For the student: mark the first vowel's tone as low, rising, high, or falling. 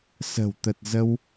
low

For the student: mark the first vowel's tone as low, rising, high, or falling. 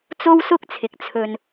high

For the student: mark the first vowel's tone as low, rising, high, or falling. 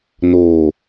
low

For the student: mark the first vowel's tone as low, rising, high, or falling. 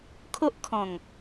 high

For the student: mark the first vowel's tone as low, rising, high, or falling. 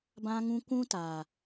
high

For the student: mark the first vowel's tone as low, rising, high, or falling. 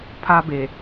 high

